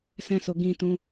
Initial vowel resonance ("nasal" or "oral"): nasal